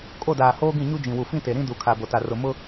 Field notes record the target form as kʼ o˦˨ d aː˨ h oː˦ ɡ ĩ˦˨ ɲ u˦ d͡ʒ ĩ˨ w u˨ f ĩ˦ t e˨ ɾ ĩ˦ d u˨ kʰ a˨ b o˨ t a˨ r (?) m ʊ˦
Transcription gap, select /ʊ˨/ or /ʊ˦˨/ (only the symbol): ʊ˨